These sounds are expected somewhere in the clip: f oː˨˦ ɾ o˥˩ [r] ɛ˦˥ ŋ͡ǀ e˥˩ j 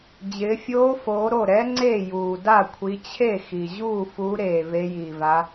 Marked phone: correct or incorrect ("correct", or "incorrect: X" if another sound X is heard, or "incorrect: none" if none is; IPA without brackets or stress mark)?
incorrect: ɾ